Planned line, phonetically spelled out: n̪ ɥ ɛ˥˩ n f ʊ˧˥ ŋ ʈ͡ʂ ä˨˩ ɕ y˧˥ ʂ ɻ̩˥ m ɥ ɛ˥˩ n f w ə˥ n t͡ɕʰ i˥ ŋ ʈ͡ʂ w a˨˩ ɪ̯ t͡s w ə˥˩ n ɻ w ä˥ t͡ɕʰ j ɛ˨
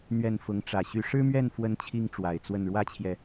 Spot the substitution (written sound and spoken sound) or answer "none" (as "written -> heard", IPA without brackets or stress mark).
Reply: none